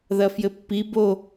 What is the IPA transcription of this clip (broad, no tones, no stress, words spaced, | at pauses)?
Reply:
ðɐfjɘpːi bo